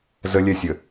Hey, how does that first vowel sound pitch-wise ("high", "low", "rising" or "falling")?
high